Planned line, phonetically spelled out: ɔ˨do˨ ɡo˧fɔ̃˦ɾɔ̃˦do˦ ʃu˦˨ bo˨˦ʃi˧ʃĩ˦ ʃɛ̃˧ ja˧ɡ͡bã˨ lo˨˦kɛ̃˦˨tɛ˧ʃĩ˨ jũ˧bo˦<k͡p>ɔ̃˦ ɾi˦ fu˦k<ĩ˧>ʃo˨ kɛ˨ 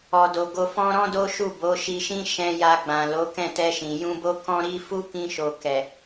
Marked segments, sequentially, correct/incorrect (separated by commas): incorrect, correct